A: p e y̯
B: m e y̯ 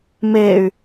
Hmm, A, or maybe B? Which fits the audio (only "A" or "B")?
B